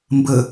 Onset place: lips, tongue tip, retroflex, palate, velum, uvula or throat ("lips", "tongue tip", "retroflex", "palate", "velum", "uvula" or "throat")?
lips